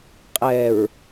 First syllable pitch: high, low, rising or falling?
low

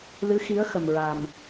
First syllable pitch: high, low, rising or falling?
rising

